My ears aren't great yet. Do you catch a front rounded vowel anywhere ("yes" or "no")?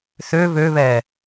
yes